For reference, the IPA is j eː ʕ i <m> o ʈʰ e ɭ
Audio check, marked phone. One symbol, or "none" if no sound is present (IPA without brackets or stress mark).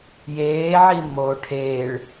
m